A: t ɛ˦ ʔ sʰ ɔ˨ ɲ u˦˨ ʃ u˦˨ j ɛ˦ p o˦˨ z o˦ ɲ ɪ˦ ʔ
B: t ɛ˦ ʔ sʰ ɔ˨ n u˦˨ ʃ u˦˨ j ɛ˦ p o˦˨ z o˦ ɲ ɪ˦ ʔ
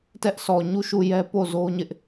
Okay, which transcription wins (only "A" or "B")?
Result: A